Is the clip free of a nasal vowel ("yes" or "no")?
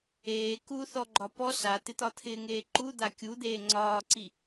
yes